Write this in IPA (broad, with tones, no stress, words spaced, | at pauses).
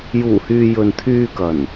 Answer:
juː˨˩hyː˨ jɵ˨n t̪ʰyː˧kɐ˨˩n